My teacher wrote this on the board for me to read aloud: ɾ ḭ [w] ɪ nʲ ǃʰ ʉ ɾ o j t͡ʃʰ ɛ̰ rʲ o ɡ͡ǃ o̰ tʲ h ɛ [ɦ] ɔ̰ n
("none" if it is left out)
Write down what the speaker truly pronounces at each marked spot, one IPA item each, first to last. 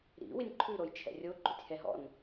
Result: w, ɦ

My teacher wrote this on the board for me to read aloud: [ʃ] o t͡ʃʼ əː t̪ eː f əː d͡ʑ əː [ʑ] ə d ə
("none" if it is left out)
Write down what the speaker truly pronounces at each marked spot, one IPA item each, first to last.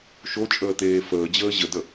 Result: ʃ, ʑ

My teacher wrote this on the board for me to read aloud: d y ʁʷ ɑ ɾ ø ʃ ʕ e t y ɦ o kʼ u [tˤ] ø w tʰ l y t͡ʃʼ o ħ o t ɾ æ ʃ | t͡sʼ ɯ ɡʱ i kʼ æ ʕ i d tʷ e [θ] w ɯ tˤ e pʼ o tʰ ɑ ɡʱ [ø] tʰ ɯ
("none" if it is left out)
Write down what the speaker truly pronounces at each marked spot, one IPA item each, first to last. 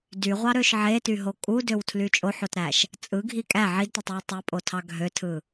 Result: d, tˤ, ø

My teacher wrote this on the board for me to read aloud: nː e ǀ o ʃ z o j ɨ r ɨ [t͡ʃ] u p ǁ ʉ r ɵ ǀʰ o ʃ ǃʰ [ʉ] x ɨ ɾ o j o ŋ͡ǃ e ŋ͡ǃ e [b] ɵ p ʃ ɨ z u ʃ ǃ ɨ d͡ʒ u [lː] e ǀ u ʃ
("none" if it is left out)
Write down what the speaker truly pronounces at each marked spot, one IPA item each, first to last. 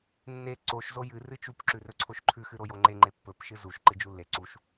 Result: t͡ʃ, ʉ, pː, lː

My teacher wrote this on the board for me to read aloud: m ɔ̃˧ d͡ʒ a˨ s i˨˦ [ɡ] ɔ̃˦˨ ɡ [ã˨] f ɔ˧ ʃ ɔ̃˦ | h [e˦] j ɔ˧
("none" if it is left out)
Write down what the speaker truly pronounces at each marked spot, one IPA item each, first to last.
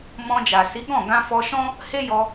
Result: ɡ, ã˧, e˦

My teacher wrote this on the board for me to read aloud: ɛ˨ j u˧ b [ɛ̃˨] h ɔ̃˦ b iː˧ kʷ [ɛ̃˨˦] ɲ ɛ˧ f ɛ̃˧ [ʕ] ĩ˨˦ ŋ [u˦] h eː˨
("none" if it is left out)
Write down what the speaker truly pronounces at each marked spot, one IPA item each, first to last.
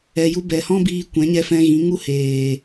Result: ɛ˨, ɛ̃˨˦, ɣ, u˦

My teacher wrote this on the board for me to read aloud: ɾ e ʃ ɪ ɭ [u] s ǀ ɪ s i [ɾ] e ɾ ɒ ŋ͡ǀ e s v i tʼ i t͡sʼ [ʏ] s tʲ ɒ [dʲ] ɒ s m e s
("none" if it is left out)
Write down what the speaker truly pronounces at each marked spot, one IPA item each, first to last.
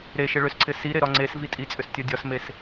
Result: ʏ, ɾ, ʏ, dʲ

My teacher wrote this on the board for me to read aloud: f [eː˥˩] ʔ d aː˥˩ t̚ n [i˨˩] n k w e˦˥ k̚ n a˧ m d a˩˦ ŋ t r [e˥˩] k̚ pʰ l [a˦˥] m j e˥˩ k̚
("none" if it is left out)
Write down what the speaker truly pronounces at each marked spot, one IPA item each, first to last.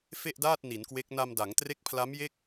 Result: e˥˩, i˩˦, e˦˥, a˦˥

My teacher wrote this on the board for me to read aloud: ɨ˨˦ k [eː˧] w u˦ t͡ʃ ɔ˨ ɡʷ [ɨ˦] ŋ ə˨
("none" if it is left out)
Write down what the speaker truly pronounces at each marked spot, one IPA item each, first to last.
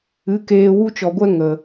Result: eː˧, ɛ˦

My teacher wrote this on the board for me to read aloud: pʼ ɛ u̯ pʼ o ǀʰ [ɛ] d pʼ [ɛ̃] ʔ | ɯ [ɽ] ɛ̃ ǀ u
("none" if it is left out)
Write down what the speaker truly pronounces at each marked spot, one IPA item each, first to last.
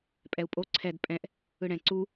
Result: ɛ, ɛ̃, ɽ

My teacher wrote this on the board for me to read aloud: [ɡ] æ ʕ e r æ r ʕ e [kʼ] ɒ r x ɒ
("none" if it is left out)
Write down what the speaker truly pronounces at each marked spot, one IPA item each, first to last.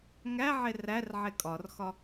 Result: ŋ, kʼ

